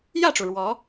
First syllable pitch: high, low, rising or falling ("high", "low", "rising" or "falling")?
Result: falling